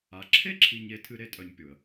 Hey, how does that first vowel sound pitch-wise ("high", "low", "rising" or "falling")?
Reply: low